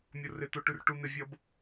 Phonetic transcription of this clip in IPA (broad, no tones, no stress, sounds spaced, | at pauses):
mʲ o r ɪ t̪ o ʈ ʉ r ʈ u n̪ ɪ vʲ ʌ b